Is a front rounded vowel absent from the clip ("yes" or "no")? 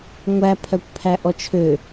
no